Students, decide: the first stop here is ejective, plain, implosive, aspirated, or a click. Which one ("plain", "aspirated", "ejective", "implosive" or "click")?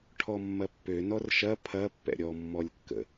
aspirated